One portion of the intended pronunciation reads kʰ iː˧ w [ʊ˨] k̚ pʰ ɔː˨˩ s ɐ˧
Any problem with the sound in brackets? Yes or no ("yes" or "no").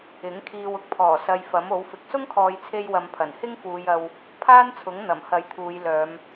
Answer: yes